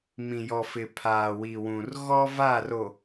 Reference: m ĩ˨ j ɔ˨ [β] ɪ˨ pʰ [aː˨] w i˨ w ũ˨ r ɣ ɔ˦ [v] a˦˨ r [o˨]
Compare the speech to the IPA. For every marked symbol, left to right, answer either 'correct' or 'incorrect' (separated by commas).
incorrect, correct, correct, correct